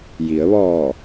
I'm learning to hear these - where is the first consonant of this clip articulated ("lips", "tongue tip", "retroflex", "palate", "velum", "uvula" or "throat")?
palate